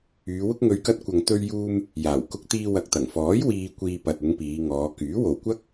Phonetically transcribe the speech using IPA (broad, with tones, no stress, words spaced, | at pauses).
yː˨˧wʊ˥k̚ ŋɵ˨˧ɥkɐ˧t̚ kʷɐ˨ŋt̪ɵ˧ɥjuː˧m | jaː˨˩wkʊ˧k̚t̪iː˧ wɐ˨k̚t̪ɐ˨˩ŋfɔː˨˥j wiː˧kʷiː˧ pɐ˨t̚ʊ˨˧ŋ piː˨˧ŋɔː˨˧ kyː˨˥wo˨wkʷɐ˥k̚